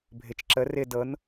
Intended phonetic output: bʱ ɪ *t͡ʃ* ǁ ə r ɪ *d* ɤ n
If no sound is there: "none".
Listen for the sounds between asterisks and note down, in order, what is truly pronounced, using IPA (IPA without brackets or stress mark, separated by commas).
t͡ʃ, d